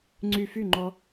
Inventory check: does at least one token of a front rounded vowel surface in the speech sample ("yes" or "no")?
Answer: yes